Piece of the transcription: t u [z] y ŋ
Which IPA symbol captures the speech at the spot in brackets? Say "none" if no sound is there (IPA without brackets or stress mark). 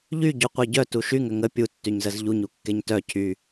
ʃ